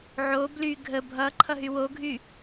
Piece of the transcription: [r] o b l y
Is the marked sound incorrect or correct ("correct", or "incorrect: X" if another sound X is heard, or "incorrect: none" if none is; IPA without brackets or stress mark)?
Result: incorrect: ʕ